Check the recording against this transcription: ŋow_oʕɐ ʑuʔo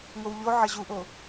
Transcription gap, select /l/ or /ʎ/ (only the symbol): ʎ